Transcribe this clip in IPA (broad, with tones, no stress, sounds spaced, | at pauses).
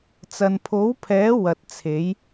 t͡s ɐ˨ n pʰ o˨˥ w pʰ ɛː˨˥ w ɐ˨ t̚ t͡sʰ e˨˥ j